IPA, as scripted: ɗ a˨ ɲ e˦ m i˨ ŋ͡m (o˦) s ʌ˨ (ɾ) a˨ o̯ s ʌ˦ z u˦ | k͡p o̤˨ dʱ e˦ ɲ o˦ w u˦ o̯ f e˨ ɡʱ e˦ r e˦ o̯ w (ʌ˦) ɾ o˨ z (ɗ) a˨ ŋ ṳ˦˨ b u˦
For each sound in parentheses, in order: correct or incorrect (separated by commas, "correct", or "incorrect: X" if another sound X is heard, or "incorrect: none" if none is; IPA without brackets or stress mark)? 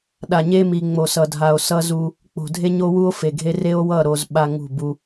incorrect: o˨, incorrect: dʱ, incorrect: ʌ˦˨, incorrect: ɓ